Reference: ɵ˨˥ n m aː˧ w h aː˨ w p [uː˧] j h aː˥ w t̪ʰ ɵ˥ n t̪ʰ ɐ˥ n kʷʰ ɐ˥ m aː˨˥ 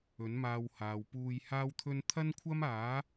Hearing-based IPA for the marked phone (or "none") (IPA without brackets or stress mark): uː˧